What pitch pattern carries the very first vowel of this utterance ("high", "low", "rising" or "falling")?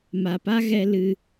low